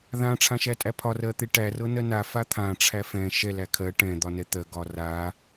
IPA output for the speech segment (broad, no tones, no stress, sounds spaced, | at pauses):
ð ã ʈ͡ʂʰ ã ʃ æ tʼ æ pʰ ɒ r ɜ t̪ e ʈ æ r ɤ n ɜ n a f a t̪ʰ ã ʈ͡ʂʰ æ f ɛ̃ ʃ ɛ l æ kʰ ɜ ʈ ɛ̃ d̪ ɒ n ɛ t̪ ɜ ɡ ɒ r a